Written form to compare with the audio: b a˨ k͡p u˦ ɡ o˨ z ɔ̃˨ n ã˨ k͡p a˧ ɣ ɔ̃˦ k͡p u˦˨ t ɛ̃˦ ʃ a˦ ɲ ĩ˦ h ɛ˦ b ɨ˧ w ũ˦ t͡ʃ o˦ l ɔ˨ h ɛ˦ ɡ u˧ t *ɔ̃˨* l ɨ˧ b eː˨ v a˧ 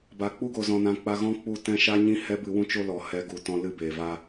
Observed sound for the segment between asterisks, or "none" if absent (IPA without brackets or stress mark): ɔ̃˦